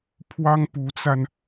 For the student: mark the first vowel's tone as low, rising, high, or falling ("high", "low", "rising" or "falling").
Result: high